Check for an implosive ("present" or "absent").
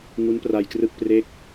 absent